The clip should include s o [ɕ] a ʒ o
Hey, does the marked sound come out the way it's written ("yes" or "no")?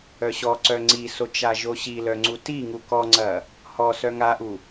no